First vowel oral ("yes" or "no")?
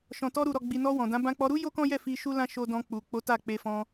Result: no